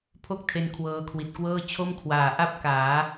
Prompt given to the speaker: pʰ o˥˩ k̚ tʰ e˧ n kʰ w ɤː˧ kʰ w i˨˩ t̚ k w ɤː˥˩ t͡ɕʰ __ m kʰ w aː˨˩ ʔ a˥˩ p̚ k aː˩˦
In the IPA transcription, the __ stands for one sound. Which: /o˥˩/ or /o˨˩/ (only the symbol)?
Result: o˥˩